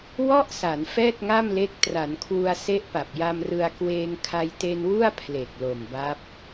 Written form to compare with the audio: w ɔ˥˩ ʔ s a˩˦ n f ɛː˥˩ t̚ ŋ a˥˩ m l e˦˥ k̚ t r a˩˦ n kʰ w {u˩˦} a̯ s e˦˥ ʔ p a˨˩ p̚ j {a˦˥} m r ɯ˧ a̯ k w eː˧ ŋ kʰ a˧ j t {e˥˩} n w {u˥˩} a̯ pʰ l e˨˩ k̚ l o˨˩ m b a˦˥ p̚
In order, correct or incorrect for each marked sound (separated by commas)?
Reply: incorrect, incorrect, incorrect, correct